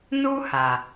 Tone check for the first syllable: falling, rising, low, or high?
high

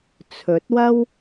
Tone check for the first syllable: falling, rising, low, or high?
rising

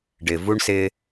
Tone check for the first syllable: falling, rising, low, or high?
low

